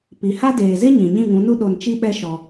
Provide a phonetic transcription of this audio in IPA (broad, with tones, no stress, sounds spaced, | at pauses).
p i˨ h a˦ d eː˨ z e˦ ɲ ĩ˨ ɲ ĩ˦˨ ŋ ũ˨˦ n u˦ ɗ o˧ n t͡ʃ i˦ ɓ ɛ˦ ʃ ɔ˧